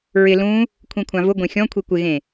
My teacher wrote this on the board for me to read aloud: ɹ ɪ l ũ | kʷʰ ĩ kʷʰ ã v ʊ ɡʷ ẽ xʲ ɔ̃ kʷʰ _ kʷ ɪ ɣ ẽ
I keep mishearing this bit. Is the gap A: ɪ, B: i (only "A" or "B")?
B